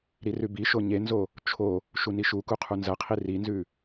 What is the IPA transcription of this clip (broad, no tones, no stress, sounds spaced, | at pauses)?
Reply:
ɾ i r ʉ b i ʃ o ɲ e n z o | t͡ʃʰ o | ʃ u n i ʃ u k u qʰ u n z ɐ qʰ i r i n z ʉ